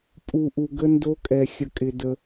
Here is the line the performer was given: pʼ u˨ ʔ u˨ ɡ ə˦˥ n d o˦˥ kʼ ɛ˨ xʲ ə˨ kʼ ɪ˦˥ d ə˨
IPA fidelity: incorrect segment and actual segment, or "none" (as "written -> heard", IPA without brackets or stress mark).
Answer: ɪ˦˥ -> ɪ˨